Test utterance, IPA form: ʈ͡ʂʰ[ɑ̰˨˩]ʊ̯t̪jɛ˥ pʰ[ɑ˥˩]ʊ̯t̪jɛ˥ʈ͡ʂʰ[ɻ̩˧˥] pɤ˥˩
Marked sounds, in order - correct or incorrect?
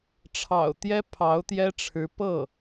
correct, incorrect: ɑ˧˥, correct

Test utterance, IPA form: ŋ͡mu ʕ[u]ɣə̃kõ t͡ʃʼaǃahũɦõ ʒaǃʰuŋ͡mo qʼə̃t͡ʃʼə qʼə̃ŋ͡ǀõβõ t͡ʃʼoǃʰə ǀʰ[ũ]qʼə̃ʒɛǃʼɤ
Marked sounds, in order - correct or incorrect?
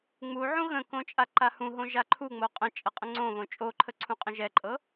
incorrect: ũ, correct

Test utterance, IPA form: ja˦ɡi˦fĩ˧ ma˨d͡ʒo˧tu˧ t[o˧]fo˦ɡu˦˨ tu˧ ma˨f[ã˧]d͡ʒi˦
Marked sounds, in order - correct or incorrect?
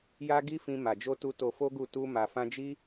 correct, correct

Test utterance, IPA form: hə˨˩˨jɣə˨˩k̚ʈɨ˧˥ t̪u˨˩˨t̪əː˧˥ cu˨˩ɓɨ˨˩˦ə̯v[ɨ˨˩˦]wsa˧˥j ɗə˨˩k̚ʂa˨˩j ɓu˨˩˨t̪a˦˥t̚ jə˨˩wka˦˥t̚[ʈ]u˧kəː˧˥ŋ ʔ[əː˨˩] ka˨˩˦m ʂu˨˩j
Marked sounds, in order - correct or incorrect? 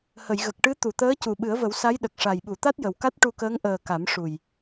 incorrect: ə˨˩˦, correct, correct

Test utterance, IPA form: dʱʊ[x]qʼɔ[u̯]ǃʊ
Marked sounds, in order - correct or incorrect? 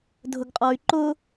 incorrect: ɡ, incorrect: y̯

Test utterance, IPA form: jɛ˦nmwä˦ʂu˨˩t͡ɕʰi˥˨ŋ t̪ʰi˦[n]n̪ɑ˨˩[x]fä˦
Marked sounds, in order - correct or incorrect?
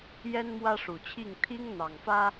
incorrect: ŋ, incorrect: ŋ

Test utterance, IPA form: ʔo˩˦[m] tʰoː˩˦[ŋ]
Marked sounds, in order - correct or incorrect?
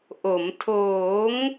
correct, correct

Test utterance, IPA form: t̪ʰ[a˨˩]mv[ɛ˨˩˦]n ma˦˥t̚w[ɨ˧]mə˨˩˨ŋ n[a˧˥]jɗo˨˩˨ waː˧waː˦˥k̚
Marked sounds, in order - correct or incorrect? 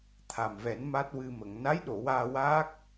correct, correct, correct, correct

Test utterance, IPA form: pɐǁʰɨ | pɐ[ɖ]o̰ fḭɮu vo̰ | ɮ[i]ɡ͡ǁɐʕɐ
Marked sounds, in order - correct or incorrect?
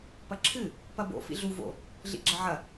incorrect: b, incorrect: ḭ

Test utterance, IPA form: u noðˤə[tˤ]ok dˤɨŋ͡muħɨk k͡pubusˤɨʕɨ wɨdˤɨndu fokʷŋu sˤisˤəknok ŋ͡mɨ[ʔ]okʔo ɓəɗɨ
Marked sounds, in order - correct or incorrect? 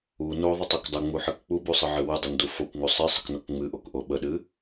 correct, correct

